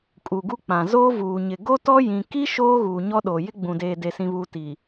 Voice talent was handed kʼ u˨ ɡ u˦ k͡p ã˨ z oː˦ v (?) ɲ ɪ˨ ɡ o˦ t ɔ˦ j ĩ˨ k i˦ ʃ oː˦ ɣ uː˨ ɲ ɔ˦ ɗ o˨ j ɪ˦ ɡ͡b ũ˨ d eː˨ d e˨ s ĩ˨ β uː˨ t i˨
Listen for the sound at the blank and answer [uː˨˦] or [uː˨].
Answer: uː˨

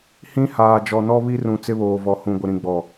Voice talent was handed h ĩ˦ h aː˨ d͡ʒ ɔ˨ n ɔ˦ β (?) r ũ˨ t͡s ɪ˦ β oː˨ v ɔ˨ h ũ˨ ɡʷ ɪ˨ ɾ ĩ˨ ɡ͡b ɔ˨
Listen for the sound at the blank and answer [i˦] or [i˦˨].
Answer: i˦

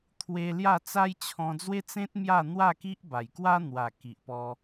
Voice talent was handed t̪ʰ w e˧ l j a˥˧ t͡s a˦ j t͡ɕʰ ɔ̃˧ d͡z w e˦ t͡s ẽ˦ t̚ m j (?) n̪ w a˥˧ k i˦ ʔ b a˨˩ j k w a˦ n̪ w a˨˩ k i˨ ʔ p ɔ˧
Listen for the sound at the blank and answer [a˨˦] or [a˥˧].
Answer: a˥˧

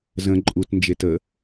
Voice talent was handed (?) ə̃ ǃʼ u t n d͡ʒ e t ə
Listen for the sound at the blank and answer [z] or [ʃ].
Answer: z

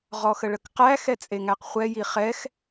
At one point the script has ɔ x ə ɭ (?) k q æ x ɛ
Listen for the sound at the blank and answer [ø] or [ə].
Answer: ə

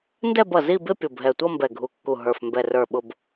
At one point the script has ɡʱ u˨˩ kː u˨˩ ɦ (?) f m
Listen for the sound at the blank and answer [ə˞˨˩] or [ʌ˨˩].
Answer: ə˞˨˩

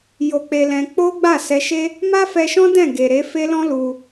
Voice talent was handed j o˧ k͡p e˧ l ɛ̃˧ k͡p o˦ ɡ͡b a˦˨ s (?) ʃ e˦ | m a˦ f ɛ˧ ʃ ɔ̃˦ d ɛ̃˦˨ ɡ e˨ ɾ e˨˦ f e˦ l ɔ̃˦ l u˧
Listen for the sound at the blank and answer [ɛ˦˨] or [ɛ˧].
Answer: ɛ˧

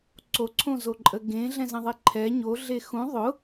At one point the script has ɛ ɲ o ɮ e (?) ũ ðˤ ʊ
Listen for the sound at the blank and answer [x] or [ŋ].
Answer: x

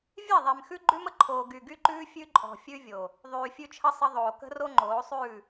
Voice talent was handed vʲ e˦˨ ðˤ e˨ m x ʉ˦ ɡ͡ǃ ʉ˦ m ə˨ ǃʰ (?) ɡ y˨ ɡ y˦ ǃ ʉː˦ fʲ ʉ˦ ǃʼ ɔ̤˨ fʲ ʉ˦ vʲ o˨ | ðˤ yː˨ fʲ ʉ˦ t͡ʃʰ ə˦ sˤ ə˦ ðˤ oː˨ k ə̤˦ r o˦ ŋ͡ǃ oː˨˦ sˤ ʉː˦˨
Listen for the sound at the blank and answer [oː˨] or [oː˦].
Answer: oː˨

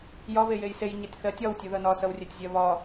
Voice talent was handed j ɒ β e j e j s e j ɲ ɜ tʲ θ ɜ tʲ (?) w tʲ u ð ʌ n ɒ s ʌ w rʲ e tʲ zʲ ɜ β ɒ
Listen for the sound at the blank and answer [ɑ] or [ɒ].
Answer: ɒ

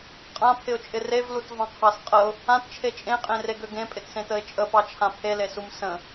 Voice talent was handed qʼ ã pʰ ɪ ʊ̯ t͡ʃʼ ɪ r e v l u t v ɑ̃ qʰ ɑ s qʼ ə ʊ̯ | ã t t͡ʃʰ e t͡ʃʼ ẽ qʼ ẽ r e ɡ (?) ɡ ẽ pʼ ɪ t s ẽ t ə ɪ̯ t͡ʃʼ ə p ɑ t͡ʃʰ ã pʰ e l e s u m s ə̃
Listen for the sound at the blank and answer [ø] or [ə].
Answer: ø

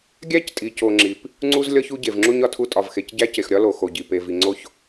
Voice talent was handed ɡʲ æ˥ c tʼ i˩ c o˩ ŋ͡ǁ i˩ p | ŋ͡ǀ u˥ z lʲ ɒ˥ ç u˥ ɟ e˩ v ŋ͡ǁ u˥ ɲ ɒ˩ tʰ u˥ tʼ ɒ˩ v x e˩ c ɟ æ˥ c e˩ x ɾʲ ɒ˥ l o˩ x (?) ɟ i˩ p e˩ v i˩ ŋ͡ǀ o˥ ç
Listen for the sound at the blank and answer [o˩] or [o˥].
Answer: o˩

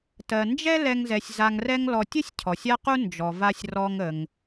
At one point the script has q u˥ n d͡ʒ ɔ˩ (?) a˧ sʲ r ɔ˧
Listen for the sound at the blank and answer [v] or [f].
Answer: v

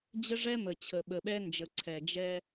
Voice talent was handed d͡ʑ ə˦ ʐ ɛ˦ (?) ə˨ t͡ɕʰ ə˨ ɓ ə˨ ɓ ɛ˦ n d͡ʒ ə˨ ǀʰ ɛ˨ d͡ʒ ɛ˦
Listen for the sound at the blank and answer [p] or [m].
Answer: m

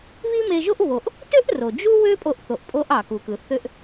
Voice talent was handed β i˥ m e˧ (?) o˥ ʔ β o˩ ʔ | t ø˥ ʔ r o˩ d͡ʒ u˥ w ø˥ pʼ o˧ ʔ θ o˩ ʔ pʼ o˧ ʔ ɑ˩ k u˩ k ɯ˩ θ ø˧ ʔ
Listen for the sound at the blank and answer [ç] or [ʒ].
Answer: ʒ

